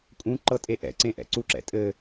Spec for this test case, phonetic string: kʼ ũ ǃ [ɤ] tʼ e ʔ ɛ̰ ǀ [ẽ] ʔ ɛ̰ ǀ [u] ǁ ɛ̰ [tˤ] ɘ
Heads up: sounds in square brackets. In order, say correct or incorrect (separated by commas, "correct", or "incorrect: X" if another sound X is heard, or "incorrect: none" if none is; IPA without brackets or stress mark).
correct, correct, correct, incorrect: tʼ